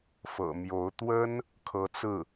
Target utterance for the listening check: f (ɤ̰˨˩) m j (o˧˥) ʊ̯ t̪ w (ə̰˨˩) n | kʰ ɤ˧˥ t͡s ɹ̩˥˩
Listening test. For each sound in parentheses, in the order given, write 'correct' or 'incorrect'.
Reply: correct, correct, incorrect

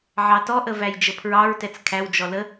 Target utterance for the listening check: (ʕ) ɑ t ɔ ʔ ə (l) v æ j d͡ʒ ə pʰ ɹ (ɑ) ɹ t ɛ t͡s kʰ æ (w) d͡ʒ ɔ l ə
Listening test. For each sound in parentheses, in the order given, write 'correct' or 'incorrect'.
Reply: correct, incorrect, correct, correct

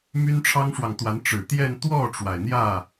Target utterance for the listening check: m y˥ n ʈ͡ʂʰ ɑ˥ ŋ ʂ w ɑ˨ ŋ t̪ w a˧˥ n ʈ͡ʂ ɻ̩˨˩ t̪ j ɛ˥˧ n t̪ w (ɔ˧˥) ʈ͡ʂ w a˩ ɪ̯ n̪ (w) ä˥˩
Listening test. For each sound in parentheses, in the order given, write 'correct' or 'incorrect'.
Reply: incorrect, incorrect

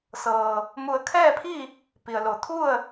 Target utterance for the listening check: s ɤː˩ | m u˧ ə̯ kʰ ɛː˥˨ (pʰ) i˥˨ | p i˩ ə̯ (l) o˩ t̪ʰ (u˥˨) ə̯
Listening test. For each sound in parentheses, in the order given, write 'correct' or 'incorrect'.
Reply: correct, correct, correct

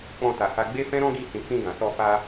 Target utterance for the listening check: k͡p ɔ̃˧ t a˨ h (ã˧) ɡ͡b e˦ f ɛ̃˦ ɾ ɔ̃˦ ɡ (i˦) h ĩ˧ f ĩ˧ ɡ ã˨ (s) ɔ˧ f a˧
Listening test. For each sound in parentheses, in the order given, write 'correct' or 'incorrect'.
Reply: incorrect, correct, correct

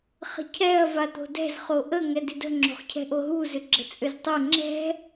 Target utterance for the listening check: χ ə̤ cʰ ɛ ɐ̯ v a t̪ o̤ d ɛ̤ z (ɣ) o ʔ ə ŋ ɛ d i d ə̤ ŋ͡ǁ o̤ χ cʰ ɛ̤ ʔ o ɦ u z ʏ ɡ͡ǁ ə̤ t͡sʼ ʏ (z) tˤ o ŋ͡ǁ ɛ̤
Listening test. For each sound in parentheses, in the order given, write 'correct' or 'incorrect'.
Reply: incorrect, correct

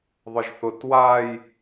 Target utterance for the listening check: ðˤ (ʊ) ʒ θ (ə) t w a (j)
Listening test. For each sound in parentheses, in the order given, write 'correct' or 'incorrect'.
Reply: correct, incorrect, correct

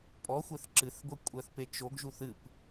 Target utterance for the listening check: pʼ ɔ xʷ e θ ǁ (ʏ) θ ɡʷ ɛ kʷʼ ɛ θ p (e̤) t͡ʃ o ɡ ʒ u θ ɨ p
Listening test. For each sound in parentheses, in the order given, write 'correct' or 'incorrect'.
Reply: incorrect, incorrect

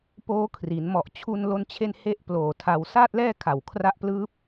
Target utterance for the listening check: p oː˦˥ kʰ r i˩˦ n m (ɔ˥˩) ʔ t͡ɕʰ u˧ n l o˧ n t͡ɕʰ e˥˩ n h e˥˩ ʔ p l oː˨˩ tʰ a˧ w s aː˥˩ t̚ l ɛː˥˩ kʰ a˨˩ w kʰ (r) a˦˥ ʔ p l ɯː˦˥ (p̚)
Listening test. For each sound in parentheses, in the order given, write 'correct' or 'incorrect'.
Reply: incorrect, correct, correct

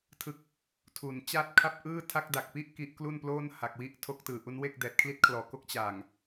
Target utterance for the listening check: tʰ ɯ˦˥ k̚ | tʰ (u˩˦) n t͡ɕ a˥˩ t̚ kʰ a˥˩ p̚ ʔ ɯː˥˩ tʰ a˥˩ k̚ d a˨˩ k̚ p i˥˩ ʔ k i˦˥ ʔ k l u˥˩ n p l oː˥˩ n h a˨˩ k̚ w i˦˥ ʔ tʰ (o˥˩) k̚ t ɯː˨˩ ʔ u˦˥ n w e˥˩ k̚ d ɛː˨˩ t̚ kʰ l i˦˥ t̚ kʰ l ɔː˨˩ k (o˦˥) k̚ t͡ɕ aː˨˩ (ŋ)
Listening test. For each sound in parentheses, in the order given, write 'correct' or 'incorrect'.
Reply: correct, incorrect, correct, correct

